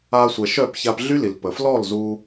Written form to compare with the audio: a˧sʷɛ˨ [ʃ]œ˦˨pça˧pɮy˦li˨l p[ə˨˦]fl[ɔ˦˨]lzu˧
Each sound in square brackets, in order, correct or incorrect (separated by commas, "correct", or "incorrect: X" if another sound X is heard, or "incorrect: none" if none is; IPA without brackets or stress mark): correct, incorrect: ə˨, correct